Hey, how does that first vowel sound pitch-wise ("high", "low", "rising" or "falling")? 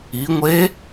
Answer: rising